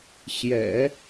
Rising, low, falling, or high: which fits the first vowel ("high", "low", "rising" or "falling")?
low